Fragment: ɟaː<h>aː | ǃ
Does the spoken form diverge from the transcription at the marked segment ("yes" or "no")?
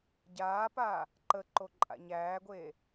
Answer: yes